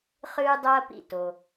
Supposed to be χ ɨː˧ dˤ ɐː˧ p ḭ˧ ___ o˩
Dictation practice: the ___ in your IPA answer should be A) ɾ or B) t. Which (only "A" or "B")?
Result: B